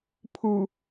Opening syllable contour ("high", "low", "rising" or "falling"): low